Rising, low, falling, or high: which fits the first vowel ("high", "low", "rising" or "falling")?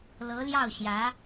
rising